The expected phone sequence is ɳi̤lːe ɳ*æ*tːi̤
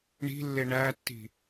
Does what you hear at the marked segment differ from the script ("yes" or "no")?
no